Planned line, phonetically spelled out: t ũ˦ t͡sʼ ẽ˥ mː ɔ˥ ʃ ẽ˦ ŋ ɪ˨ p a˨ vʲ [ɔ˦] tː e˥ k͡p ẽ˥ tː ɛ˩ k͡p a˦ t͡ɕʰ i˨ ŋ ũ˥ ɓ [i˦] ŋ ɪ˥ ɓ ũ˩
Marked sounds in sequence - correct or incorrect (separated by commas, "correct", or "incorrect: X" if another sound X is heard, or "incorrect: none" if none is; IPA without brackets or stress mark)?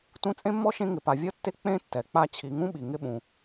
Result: incorrect: ɔ˥, incorrect: i˩